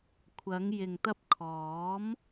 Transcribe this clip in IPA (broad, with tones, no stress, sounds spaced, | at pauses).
kʷʰ ɐ˨˧ ŋ j ɪ˨ ŋ t̪ ɐ˧ p̚ kʰ ɔː˨˥ m